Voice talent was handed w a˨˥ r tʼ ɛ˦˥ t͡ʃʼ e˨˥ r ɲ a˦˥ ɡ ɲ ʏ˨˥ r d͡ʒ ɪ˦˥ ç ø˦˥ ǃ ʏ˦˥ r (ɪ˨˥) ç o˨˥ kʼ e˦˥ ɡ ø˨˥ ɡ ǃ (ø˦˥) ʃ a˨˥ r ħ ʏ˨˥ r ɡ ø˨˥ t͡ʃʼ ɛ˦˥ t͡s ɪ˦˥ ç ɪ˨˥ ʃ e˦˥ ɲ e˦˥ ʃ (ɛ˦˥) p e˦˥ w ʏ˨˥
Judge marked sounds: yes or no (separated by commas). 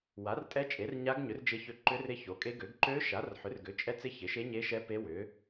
no, yes, yes